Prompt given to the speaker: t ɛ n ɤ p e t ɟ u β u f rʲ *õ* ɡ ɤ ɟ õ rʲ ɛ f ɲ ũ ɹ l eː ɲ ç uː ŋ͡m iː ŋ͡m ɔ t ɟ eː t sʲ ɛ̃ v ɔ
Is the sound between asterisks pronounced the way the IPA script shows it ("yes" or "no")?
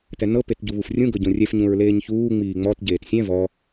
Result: no